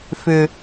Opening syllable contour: low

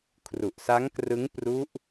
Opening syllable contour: low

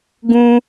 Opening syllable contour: high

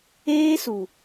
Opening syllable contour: high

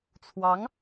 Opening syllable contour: rising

